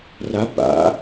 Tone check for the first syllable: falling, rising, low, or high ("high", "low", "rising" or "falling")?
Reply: rising